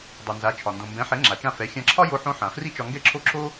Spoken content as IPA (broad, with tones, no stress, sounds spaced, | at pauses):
dˤ i˩ n z a˩˥ t͡ʃʰ ɒ˩ n d õ˩ m b ɛ̃˩˥ ħ ɛ˩˥ ŋ͡ǁ a˩ t͡ʃ ã˥˩ f ɛ˩˥ xʲ ã˧ ǁʰ ɒ˥ j o˥ ħ õ˥ ħ ã˩ f r i˥ t͡ʃ ɒ˧ ŋ ɡ ɛ˥˩ ǁʰ o˥˩ ǁʰ o˥